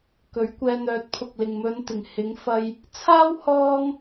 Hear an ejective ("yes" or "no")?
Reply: no